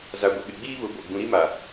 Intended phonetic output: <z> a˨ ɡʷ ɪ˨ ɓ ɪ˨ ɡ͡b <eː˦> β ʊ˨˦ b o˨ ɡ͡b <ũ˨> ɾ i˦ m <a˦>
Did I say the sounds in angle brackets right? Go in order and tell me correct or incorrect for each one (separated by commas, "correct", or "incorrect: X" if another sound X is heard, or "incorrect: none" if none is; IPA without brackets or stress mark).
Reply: correct, incorrect: iː˦, correct, incorrect: a˨